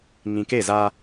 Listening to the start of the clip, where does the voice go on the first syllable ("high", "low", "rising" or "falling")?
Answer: low